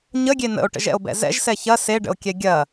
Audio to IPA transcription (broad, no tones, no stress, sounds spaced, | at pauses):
ɲ ə ɡʲ e n ə̰ o̯ ʈ ə̰ ʒ ɛ̰ o̯ b ɛ̰ z ɛ̰ ʒ s ɛ ç ɐ s e ɖ ə̰ o̯ kʲ ɛ ɡʲ ɐ